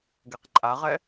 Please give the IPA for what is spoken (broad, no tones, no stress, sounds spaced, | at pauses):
ɡ ɛ q ǃʼ a ʁ ɛ